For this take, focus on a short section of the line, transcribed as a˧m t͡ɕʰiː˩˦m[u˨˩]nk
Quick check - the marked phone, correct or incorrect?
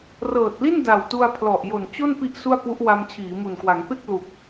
correct